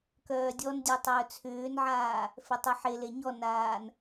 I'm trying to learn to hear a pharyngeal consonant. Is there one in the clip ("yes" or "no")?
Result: yes